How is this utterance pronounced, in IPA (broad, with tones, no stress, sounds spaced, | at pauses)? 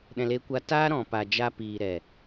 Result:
ɗ ɛ̃˨ l e˧ kʷ a˧ t aː˦ ɾ ɔ̃˨ p a˨ d͡ʒ a˧ p iː˨ ɾ ɛ˨